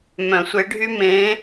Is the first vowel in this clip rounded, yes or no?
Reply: yes